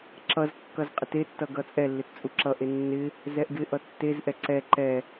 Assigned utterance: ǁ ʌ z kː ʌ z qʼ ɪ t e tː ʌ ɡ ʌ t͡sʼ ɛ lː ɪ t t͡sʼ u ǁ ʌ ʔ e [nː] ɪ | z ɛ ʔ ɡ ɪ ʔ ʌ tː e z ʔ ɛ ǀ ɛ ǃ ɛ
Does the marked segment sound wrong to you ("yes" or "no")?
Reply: no